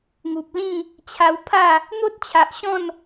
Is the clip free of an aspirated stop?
no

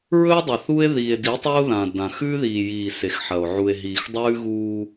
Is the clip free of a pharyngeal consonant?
no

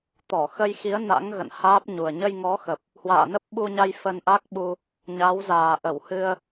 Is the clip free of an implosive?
no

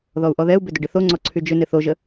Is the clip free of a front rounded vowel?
no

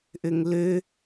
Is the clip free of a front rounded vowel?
no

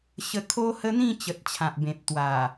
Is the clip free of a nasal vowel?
no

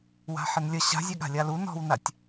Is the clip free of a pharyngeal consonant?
no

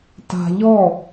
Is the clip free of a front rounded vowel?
yes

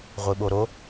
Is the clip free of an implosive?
no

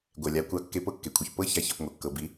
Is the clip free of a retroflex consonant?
yes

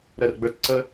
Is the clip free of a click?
no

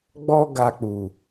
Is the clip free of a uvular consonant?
yes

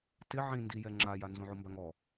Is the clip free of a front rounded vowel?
yes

